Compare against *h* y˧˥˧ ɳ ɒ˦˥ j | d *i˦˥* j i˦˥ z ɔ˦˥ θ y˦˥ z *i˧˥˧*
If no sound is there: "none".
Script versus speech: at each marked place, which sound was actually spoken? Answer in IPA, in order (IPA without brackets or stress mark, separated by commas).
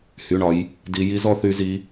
h, i˦˥, i˦˥